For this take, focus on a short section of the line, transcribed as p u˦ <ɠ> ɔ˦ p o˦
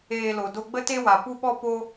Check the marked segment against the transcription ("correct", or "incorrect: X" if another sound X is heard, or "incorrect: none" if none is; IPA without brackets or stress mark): incorrect: ɓ